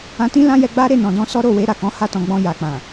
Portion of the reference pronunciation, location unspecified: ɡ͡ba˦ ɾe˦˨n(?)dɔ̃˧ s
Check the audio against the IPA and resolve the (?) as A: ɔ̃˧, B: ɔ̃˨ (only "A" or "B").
B